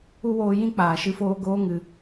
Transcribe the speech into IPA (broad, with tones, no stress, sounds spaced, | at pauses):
u˦ w oː˧ j ĩ˦ k͡p aː˨ ʃ ɨ˦ f oː˦ ɡ oː˧ ŋ ɨ˨